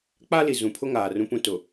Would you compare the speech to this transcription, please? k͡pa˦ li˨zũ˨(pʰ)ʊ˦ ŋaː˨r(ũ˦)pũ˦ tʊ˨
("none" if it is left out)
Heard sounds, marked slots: pʰ, ũ˦

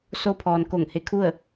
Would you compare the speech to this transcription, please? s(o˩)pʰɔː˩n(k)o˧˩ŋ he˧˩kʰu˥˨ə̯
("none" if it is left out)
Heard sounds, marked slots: o˧˥, k

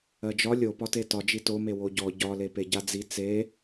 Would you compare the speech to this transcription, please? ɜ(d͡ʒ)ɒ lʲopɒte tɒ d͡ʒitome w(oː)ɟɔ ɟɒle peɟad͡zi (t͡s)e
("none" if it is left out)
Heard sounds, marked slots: d͡ʒ, o, t͡s

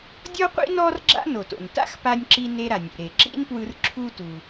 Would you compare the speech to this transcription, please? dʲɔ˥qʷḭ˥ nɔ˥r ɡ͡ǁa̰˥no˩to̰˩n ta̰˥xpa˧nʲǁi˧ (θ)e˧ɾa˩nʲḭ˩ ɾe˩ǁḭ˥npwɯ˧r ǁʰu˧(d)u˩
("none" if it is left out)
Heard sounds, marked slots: n, t

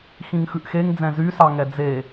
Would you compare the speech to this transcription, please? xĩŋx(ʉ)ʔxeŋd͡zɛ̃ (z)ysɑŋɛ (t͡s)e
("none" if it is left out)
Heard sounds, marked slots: ʉ, z, d͡z

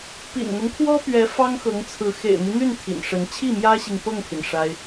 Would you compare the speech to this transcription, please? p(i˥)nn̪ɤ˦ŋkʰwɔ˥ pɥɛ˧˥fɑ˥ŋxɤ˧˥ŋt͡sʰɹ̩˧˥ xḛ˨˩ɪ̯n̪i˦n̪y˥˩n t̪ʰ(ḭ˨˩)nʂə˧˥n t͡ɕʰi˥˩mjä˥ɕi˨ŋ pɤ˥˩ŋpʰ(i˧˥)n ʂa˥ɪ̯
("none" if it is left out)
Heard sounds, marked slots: ḭ˨˩, ḭ˨˩, i˩

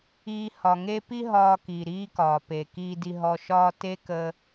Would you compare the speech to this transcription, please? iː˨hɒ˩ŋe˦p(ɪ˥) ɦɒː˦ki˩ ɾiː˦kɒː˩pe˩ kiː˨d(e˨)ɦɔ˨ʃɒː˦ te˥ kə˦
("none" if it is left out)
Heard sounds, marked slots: i˥, i˨

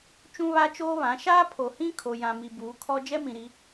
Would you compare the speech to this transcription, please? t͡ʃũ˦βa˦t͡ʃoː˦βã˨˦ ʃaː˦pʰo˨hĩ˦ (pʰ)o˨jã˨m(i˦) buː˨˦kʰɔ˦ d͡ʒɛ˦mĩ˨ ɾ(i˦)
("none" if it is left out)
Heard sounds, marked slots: kʰ, i˨, i˦

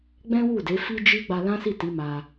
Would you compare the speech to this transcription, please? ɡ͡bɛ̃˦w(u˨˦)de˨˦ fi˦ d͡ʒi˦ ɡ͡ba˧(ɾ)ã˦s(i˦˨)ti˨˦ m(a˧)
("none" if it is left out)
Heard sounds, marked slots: u˦˨, l, i˦˨, a˧

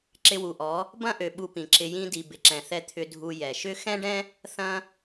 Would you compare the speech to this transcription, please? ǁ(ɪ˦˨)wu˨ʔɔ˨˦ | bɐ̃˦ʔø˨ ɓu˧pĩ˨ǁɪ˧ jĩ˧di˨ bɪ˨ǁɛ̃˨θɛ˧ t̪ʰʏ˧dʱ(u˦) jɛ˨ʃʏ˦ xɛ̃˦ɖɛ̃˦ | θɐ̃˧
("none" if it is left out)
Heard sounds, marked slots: ɪ˧, u˧

